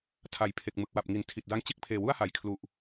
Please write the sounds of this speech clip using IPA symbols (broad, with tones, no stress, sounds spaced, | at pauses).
tʰ a˩˦ j pʰ e˨˩ k̚ m ɯ˨˩ k̚ w a˨˩ p̚ ŋ i˩˦ n tʰ i˨˩ t̚ d a˦˥ ŋ t͡ɕ e˥˩ k̚ pʰ eː˨˩ w u˥˩ a̯ h a˩˦ j kʰ l u˨˩ ʔ